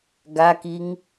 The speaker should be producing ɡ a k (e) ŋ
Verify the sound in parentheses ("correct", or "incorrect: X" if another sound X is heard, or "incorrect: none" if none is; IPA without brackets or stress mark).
incorrect: i